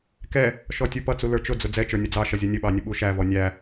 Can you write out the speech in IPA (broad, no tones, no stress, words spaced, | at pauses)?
kɛ | ʃɔtʲupʌt͡su lə˞t͡ʃʊd͡zʊ d͡zɛt͡ʃə˞ nʲʌd͡zɑʃʌ zʲʌnʲəɓɑ nʲəɓuʃævɔ nʲæ